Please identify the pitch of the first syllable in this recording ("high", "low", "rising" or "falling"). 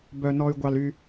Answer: low